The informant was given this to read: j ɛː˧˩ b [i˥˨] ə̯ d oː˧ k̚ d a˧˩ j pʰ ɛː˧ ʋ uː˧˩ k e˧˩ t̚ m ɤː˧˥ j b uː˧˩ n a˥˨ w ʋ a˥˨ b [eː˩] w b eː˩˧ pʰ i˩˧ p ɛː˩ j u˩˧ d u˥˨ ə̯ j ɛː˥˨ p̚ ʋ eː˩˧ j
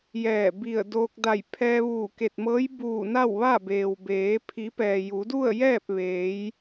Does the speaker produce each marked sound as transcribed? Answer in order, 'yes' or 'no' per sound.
no, yes

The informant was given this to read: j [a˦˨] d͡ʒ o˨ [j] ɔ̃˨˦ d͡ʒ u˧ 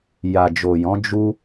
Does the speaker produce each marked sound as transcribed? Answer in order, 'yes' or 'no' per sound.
no, yes

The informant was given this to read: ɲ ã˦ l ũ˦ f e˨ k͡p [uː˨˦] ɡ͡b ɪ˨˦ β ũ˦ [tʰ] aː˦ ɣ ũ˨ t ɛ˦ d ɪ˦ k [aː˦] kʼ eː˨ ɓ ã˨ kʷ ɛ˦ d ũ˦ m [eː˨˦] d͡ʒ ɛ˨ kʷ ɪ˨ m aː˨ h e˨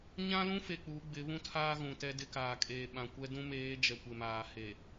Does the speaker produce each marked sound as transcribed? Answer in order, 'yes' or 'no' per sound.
yes, yes, no, yes

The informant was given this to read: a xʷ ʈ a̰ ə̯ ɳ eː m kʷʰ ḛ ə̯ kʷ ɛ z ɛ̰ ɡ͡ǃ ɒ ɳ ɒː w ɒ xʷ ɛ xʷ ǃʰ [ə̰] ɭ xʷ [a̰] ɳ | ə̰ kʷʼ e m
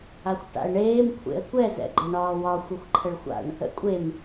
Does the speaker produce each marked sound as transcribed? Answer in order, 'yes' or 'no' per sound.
no, yes

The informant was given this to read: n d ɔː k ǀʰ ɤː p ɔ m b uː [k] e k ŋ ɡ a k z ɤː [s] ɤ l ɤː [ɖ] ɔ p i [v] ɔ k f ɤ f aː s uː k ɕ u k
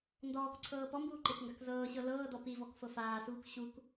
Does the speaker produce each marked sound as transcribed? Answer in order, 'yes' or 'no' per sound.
no, no, no, yes

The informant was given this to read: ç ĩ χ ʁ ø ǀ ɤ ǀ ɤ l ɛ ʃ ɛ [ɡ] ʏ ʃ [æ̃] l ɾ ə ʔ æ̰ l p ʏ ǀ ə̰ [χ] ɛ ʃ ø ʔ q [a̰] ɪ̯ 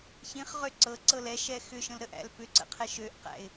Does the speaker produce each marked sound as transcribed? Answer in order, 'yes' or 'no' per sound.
no, no, no, no

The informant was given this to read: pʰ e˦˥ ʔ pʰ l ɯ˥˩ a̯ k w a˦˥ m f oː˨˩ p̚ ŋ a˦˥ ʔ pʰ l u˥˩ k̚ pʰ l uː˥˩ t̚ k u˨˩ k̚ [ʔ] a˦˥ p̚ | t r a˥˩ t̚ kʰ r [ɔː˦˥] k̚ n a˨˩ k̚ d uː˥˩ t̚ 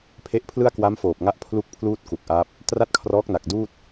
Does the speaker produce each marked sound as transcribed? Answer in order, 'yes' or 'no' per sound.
yes, yes

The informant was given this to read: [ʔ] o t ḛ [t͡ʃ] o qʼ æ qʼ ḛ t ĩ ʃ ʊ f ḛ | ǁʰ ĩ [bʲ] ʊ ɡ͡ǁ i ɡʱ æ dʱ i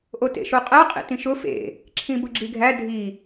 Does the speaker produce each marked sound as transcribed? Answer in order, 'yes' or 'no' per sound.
yes, no, no

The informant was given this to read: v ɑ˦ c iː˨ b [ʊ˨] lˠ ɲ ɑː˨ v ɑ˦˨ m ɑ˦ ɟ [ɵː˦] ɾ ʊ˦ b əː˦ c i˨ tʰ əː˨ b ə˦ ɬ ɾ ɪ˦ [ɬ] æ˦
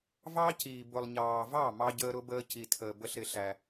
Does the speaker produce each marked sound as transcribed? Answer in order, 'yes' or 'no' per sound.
yes, no, yes

